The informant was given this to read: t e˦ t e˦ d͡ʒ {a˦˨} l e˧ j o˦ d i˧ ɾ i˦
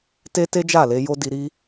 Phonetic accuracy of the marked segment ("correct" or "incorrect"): correct